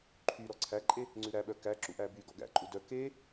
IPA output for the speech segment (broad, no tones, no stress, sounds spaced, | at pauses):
ǃʰ y ɾ ɔ ǀʰ æ ǃʼ e | ŋ͡ǀ ʉ ɾ æ ɓ œ k æ ǁ ṵ ʔ æ b y ɡ ɔ̰ ɡ æ̰ ǃʼ u d œ k e